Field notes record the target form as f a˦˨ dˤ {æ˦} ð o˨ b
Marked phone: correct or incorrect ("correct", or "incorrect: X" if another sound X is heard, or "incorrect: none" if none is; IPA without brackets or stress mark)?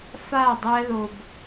correct